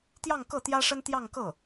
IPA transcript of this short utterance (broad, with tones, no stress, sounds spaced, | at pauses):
t̪ j ɑ˥˧ ŋ k ɤ˥˩ t̪ j ä˥ ʂ ə˥ n t̪ j ɑ˥˧ ŋ k ɤ˥˩